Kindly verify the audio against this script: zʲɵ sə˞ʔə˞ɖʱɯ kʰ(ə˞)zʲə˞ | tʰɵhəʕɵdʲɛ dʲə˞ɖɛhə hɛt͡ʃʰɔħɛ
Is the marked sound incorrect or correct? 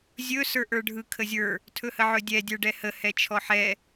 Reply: incorrect